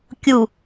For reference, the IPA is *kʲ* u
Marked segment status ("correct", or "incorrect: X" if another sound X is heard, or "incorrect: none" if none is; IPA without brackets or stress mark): correct